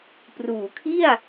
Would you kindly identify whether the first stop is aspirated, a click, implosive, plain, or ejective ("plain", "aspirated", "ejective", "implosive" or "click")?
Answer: plain